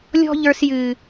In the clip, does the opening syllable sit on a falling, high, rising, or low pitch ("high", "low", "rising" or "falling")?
high